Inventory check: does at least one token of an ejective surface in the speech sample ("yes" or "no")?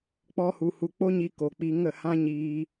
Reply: no